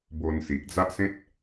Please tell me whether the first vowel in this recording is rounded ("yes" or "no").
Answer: yes